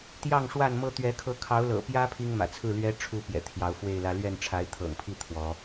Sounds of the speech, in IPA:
t̪jɑ˥˨ŋʂwa˥˨nmɤ˦ t̪ɥɛ˨˦kʰɤ˨˦kʰɑ˨˦ʊ̯lɤ̰˨˩ pjä˦ pʰi˦ŋmä̰˨˩t͡sʰɹ̩˥˨lɥɛ˦ ʈ͡ʂʰu˥˨pjɛ̰˨˩ t̪ʰjɑ˨˦ʊ̯fwe˥˨ɪ̯lä˦ lɥɛ˥˨nʈ͡ʂʰa˨˦ɪ̯t̪ʰɤ̰˨˩ŋpʰi˥˨ t̪ʰwɔ˨˦

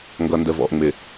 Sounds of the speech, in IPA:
ŋɡʌ˨ndə˨ vɔ̰˨ʔŋ͡mɪ˨

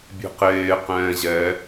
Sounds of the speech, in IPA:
bʲe̤qeː qɛ̃ːʑɛ

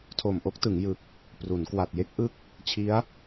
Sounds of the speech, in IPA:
tʰo˨˩mʔo˥˩k̚tɯ˩˦ŋ jɯ˨˩k̚ | pru˩˦nkwa˨˩t̚je˥˩k̚ʔɯ˥˩k̚ | t͡ɕʰi˦˥a̯

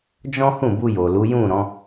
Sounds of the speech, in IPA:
d͡ʒɔ̃˦hũ˦˨bu˧ jo˨lu˨˦jũ˦˨ ɾɔ̃˨˦

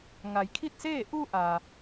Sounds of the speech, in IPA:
ŋa˩jkʰi˥˨t̚seː˥˨ ʔu˧ ʔa˩

